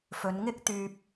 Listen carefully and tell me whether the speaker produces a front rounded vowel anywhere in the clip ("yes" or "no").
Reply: yes